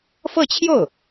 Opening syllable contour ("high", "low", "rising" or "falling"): falling